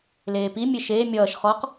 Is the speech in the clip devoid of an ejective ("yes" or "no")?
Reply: yes